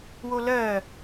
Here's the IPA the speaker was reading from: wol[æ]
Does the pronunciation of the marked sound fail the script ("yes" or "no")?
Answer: yes